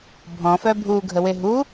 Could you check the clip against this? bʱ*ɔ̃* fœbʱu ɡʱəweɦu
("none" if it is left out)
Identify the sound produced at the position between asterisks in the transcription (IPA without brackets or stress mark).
ɔ̃